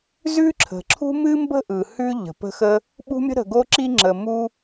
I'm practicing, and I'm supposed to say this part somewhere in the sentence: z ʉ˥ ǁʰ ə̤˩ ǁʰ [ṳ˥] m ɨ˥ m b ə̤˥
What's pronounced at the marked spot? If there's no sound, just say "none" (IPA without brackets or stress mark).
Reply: ṳ˥